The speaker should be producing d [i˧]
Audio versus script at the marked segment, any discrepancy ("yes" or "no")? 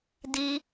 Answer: no